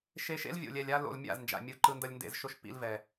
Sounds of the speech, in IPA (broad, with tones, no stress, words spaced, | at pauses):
ʃe˧ʃḛ˦lvʲo̰˨lʲɛ˨lʲ a˧lo̰˨l mʲa̰˦˨znd͡ʒa̰˨mʲɯ˨˦ ǃɯ˧ndʌ˧lʲndḛ˧z ʃo˦˨ʃ pḭ˧lvɛ˨